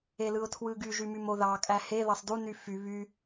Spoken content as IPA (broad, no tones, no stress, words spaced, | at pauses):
elɯʊ̯tʰwɯɡy ʒymymoðɑ kʼæhe ðɑsˤdu nyfy βy